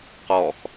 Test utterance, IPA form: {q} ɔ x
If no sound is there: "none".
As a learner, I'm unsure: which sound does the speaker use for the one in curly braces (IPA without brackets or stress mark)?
q